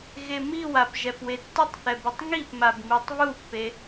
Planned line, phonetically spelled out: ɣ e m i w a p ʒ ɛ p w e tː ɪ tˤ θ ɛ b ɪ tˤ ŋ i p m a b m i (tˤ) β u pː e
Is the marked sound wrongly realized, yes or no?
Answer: no